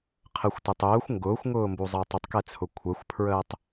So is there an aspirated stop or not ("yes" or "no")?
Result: yes